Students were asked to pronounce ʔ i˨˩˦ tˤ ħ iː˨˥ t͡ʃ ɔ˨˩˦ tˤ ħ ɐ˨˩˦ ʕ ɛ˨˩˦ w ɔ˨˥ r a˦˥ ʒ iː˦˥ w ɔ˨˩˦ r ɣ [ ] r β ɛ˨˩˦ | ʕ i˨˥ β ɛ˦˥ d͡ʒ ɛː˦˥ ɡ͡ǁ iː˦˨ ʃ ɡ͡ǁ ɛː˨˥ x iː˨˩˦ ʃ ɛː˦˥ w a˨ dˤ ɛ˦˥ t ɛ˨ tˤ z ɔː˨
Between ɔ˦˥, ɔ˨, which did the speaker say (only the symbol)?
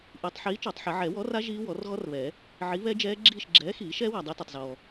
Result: ɔ˦˥